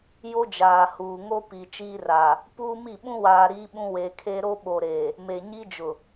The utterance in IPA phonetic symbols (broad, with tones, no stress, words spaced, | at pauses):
jo˦d͡ʒaː˨huː˨ŋo˦ pi˨ t͡ʃiː˦raː˨ | puː˦mi˦˨ ɓũ˦waː˨ ɾiː˦ɓũ˦ we˨kʰe˦ ɾo˦ɓo˨ɾeː˨ | me˨ɲi˦d͡ʒʊ˨